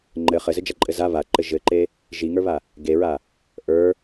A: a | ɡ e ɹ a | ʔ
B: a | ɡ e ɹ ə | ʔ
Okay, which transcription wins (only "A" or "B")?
A